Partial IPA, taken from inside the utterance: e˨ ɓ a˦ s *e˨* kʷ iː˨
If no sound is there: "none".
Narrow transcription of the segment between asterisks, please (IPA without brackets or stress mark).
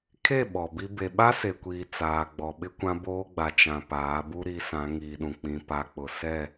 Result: e˨